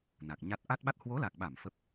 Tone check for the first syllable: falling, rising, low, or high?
low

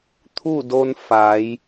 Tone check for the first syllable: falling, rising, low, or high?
falling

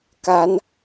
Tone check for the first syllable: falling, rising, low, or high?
rising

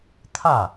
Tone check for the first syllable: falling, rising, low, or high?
falling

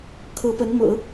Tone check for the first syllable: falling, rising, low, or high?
rising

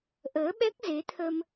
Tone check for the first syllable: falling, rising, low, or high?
rising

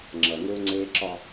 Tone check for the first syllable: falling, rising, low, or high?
low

